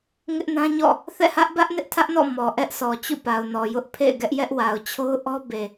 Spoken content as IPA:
ŋ ɪ˦ ʔ n ã˦ ɲ ɔ̰˦˨ | θ ɛ̰˦˨ h ä˦ ʔ b ä˦ ʔ n ɪ˦ ʔ tʰ ä˦ ʔ n ɔ̰˦˨ m ɔ˨ ʔ ɛ˦ ʔ s ɔ˨ t͡ɕ ṵ˦˨ p a˨ ʊ̯ n ɔ˨ j ʊ˦ ʔ pʰ ḛ˦˨ ɪ̯ ɡ ɛ˦ ʔ j ɛ˦ ʔ w a˨ ʊ̯ t͡ɕʰ o˦ ʊ̯ ʔ ɔ˦ b e˨

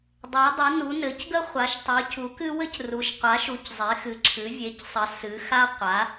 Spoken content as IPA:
dˤ ɘ˩˧ w dˤ ɨ˩˧ n u˩˧ n ɘ˩˧ c ɡ ə˦ χʷ a˩˧ ʃ tˤ u˩˧ c u˩˧ k ɨ˦ w ɘ˦ c r u˩˧ ʃ qʷ a˩˧ ʃ u˩˧ c zˤ e˩˧ x ɨ˩˧ ǁʰ ɨ˩˧ vʲ e˩˧ c sˤ ə˩˧ s ɨ˩˧ x a˦ qʷ a˩˧

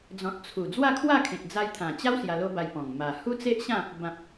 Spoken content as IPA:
d͡z ɔ̃˨ t̚ t͡sʰ u˨˩ d͡z w a˥˧ kʰ w a˥˧ kʰ ẽ˨ t̚ d͡z a˧ j t̪ʰ ã˨˩ t͡ɕ a˦ w s j a˧ l o˦ b a˧ j p ɔ̃˨˩ ŋ m a˨˩ h u˦ t͡s e˦ ʔ ɕ ã˥˧ | b ã˨ p̚

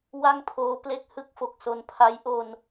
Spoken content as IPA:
w a˥˩ ŋ pʰ oː˦˥ p l e˦˥ k̚ h ɯ˦˥ k̚ f o˨˩ k̚ s o˧ n pʰ a˦˥ j ʔ o˧ n

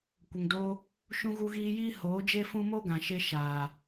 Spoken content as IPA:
kʷ ə˨ ŋ d oː˧ | ʃ ũ˧ ɣ u˧ ɣ iː˧ j iː˦ h oː˨˦ d͡ʒ e˦ f ũ˦ m o˦ ɡ ã˨ ʃ e˧ ʃ aː˨

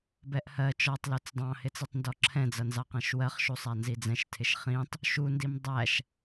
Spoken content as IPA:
b ɛ ʔ h ɜ t͡ʃ ɔ tˤ l u t͡s dˤ ɑ̃ h ɪ t͡s i tˤ n d ɔ ǁʰ ɛ̃ d͡z ʌ n z ɑ q ɛ̃ ʃ w ɜ χ ʃ u sˤ æ n z i d͡z ɛ̃ ʃ tʰ ɪ ʃ χ ĩ tˤ | ʃ u n d i m dˤ æ ʃ

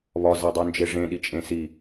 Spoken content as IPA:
β ɒ z æ dˤ u n d͡ʒ e ʐ ẽ ɗ i t͡ʃʼ ẽ s i

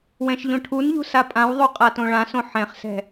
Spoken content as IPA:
w ɛ̃ ʃ ʎ õ ʈʰ u n ʎ ṳ s a pʼ ã w ðˤ u qʼ a t õ ɭ ã s õ ħ ɛ̃ χ s ɛ̤

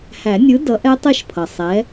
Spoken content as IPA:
h æ˨˩˦ nʲ ɯ˨˥ d ʌ˨˥ ʔ ɛ˦˥ tˤ ɛ˦˨ ʃ pʰ ʌ˩ sˤ ɛ˨˥

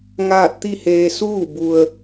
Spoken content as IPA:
ŋ aː˥˨ t̚ t̪ i˥˨ h eː˧ s uː˥˨ b u˧ ə̯

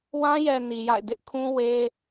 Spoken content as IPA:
w ã˦ j ɛ˨ n i˨ j a̰˦˨ ɪ̯ d ɪ˦ ʔ kʰ ũ˦ w e˦

